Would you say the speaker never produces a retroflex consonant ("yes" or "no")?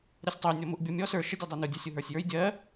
yes